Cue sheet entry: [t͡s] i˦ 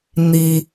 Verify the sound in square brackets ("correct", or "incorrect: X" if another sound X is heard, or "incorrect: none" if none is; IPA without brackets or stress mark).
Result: incorrect: n̪